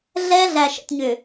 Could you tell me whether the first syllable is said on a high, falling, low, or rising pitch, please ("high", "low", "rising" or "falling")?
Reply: high